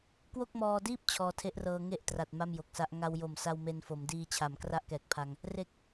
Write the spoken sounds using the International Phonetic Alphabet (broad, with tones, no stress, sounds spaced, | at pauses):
k w o˥˩ k̚ m ɔː˧ d iː˥˩ p̚ t͡ɕʰ ɔː˧ tʰ e˦˥ ʔ r ɤː˧ ŋ e˥˩ ʔ t r a˨˩ t̚ m a˥˩ m j o˨˩ k̚ s a˦˥ ʔ ŋ a˧ w j o˨˩ m s a˧ w m e˧ n f o˩˦ m d iː˧ t͡ɕʰ a˩˦ m k r a˥˩ ʔ k ɛː˨˩ k̚ pʰ a˧ ŋ | r e˨˩ k̚